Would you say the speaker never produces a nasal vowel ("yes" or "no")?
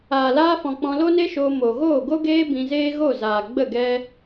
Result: no